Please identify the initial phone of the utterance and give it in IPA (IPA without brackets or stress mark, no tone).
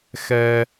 x